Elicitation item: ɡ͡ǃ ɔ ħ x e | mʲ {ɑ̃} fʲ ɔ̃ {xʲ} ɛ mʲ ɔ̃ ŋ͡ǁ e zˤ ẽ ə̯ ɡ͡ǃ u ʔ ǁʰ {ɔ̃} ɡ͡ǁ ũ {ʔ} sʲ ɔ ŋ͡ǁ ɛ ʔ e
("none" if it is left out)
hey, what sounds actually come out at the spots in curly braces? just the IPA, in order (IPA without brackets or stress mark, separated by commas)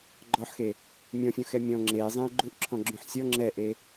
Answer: ɔ̃, x, ɔ̃, ħ